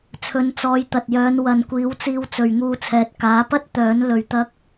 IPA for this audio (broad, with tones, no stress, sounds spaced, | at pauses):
t͡sʰ ɵ˨˧ n t͡s ɔː˨˧ j t̪ ɐ˨ t̚ j œː˨˧ n w ɐ˨ n kʷ iː˨˥ w t͡s iː˧ w t͡s ɵ˨ ɥ ŋ uː˧ t͡sʰ ɛː˨ t̚ k aː˨˥ p ɐ˥ t̚ t̪ œː˨˥ n l ɵ˧ ɥ t̪ ɐ˥ k̚